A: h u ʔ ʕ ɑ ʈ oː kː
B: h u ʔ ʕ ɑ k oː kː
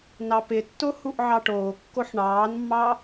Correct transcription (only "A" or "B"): A